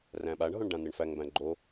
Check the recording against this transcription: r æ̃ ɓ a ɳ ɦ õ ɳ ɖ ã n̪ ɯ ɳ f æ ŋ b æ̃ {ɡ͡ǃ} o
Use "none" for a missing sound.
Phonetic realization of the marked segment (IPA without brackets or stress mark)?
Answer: ɡ͡ǃ